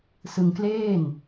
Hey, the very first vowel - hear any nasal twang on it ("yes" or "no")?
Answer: no